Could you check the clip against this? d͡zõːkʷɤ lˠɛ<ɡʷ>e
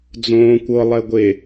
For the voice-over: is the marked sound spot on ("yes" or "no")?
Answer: yes